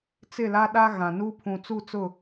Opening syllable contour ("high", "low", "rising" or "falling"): falling